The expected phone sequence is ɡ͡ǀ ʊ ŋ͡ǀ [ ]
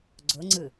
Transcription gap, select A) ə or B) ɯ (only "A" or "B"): B